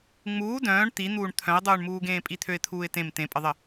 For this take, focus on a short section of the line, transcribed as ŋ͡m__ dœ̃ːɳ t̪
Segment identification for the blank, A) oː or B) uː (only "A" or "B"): B